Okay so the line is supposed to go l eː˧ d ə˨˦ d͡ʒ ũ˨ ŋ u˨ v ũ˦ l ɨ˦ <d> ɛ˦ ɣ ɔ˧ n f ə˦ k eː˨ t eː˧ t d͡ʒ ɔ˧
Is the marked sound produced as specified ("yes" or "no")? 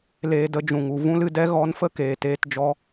yes